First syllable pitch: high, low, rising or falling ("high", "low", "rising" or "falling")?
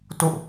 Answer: falling